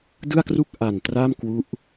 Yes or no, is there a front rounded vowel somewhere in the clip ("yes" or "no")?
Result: no